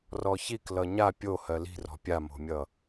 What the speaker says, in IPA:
r ɔ ç i k l ʌ ɲ a pʲ o h ɜ l i̤ r ɔ̤ pʲ a m o̤ mʲ ʌ

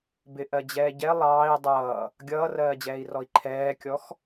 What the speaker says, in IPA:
b ɪ ʔ ɜ d͡ʑ ɛː ɟ ɛ lˠ ɑː i̯ dˤ ʌː | ɡʲ ʌː r ɜː d͡ʑ ɛː i̯ r ɔ i̯ ǃʰ ɛː kʲ ɔ x

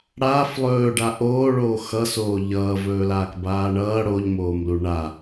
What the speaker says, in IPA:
ɽ aː f lˠ ɵː ɖ a ʔ oː ɭ oː x ʌ s oː ʎ ʌː v ɵː l aː k b aː ɳ ʌː ɽ o ʎ m oː m l u ɳ a

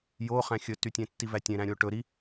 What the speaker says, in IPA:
j o χ æ̃ xʲ ɵ t y tʲ ẽ tː i v æ tʲ ẽ ɾ æ̃ ɾʲ o ʈ ɵ ɾ i

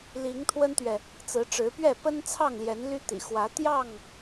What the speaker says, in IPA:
l i˨˦ ŋ t̪ʰ w ə˦ n t̪ ɥ ɛ˨ | t͡s ɹ̩˨˦ ʈ͡ʂ ɻ̩˨˦ p ɥ ɛ˥˨ p ə˦ n t͡sʰ ɑ˥˨ ŋ l j ɛ˨˦ n l y˦ t̪ ḭ˨˩ x w ä˨˦ t̪ j ɑ˥˨ ŋ

